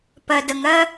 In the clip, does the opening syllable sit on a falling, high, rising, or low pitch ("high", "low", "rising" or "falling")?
low